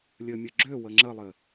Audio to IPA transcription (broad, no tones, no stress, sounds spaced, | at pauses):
lʲ ɘ mʲ ɘ ɡ͡ǁ ø w ə ŋ͡ǁ ə lˠ ɘ